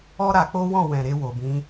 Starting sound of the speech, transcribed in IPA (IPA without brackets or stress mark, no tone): ɔ